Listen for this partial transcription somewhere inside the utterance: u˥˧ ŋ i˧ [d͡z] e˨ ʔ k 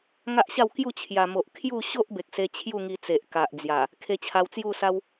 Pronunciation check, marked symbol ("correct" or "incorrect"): incorrect